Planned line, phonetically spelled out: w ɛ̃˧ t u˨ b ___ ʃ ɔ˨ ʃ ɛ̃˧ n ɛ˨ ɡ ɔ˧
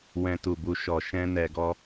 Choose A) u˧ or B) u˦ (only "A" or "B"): A